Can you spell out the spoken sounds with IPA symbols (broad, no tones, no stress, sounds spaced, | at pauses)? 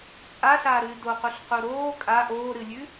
t͡sʼ a ɬ aː ɾ ɨː d o q u ɬ q u ɾ oː kʼ a ʔ oː ɾ ɨ lʲ ʉ